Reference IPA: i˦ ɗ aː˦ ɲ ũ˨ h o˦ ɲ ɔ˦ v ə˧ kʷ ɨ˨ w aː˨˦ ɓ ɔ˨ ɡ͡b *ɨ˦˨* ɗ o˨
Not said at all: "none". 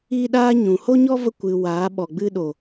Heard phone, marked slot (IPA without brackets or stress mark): ɨ˧